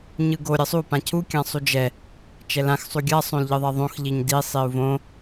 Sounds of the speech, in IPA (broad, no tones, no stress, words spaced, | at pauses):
ɲɯɡo ɾʲʌsˤu pãcʰu kʲãsˤud͡ʒɛ | t͡ʃɛlãx sˤuɡʲa sˤõlʎɯðˤɛðˤõx ʎiɲdi sˤiu̯võ